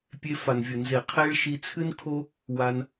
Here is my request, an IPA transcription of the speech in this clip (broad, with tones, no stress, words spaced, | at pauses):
pʲe˧ fa˨nvʲo˨nze˨ qʰe˦ɭ ʃi˧t͡sʰɨ˦nkʰo˦ | wa˧n